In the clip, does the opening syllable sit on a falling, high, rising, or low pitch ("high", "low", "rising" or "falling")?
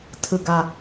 low